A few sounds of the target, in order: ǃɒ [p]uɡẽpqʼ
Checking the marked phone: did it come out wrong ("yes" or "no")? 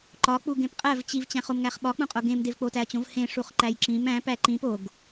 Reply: yes